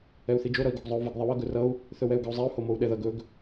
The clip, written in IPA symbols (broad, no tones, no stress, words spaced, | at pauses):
ɛu̯θid͡ʒo ɾʌi̯ɡoɡzˤou̯vəɡ ðˤəwʌɡ ɵrʌu̯ | θɵwɛu̯ɡʌu̯zˤɛu̯ homou̯ɗɛðʌɡ ɵɡ